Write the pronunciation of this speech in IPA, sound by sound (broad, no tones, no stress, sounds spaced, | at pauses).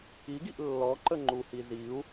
i ɡ i ʔ lː ɔ ǃ ə ŋ͡ǃ u h i z i u̯